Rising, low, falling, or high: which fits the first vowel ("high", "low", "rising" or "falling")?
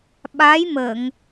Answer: rising